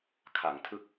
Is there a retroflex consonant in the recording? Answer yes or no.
no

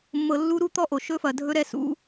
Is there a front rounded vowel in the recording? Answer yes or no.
no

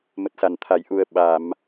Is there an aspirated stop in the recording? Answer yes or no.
yes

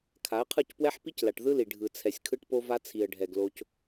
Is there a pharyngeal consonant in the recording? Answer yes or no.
yes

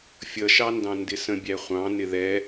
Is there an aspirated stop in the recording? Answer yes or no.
no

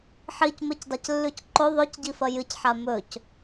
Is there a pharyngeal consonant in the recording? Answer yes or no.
yes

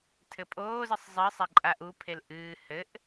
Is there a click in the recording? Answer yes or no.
yes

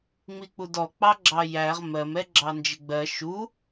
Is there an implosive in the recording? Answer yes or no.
no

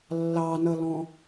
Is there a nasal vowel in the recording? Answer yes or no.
yes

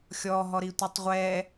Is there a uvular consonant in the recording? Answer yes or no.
yes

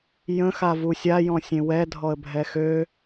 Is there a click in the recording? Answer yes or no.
no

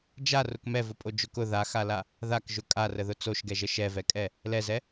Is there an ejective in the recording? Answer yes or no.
yes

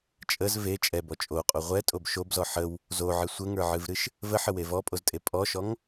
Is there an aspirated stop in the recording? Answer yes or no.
no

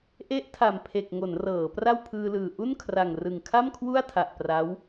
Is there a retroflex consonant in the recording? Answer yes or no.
no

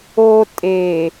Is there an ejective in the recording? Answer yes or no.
yes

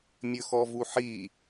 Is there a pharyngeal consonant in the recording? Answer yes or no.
yes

